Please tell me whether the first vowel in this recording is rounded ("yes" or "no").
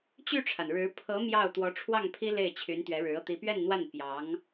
yes